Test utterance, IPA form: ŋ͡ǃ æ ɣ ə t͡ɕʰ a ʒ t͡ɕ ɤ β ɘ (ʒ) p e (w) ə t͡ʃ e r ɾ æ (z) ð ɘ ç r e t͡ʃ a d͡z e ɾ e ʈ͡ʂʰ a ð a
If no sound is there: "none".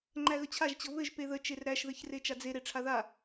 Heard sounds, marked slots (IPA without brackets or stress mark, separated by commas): ʒ, ð, ʃ